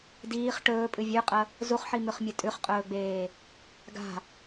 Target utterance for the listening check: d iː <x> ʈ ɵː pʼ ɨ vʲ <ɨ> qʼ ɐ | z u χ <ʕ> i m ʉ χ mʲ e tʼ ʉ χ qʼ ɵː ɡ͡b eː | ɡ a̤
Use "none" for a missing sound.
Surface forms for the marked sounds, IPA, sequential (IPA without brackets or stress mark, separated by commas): χ, ʉ, ħ